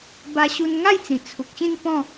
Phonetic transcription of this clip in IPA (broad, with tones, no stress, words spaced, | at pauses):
ba˧ɕu˧nŋa˥˧jt͡sĩ˨˩ t͡sʰu˨k̚ɕĩ˥˧npɔ̃˥˧